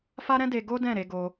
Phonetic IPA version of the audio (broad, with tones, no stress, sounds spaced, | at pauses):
f a˦ ɾ ɛ̃˦ d e˧ ɡ o˦ d ɛ̃˦˨ ɾ e˧ ɡ o˧